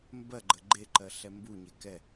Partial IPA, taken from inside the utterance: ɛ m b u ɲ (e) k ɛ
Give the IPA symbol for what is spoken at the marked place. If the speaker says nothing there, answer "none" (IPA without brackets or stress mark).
e